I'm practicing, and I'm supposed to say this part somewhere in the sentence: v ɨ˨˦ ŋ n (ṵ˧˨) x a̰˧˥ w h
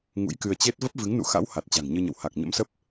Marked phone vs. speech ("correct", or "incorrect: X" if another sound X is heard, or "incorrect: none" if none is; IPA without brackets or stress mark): correct